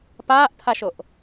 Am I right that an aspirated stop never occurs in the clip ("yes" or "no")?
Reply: no